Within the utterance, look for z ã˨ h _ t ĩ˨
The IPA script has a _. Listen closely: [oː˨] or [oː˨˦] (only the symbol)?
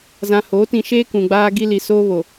oː˨˦